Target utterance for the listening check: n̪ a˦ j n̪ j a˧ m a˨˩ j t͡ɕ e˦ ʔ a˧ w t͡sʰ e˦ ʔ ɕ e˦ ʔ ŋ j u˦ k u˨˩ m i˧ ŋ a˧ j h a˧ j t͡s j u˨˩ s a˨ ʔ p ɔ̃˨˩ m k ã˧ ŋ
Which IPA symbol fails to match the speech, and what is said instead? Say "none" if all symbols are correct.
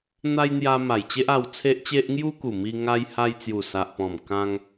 ɕ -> t͡ɕ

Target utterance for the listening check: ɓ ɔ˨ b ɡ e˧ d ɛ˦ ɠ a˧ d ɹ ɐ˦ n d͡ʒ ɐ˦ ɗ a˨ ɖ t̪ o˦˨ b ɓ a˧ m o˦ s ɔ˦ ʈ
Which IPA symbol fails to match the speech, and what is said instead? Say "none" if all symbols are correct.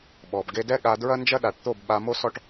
ɖ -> ʈ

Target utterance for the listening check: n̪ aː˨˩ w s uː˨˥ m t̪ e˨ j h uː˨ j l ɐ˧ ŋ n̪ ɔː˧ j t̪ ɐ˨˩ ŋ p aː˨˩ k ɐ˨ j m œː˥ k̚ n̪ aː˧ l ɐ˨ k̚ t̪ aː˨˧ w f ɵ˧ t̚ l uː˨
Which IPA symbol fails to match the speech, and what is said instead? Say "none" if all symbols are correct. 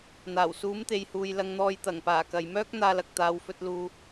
none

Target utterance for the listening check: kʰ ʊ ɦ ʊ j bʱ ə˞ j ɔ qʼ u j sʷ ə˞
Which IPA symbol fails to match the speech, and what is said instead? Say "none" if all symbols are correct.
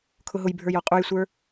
none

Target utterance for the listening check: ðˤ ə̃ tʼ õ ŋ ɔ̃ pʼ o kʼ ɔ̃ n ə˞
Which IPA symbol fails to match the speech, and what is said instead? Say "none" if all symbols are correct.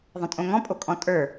n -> tʼ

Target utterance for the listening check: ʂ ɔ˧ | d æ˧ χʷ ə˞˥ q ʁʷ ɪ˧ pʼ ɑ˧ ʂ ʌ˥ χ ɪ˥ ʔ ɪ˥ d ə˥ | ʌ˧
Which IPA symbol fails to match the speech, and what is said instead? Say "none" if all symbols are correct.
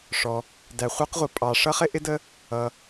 none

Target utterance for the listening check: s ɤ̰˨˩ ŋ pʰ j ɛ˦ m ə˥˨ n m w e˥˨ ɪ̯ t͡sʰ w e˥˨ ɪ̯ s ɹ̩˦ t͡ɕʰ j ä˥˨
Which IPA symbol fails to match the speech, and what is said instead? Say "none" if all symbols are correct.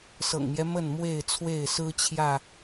pʰ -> m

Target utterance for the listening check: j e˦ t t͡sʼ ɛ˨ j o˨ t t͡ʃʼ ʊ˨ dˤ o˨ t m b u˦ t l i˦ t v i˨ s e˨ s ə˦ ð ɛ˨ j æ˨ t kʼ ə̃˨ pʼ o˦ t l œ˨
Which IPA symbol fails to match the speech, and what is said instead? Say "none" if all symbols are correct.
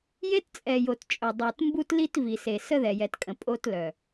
æ˨ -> ɛ˨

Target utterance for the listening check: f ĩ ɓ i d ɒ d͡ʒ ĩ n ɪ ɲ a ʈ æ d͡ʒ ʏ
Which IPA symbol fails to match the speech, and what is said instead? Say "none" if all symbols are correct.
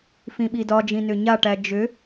ɪ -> ʏ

